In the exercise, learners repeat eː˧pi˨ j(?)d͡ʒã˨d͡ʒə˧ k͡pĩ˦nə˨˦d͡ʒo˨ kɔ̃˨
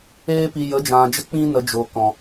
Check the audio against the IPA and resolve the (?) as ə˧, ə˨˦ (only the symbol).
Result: ə˨˦